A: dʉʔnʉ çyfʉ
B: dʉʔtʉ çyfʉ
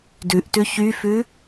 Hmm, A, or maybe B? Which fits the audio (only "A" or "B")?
B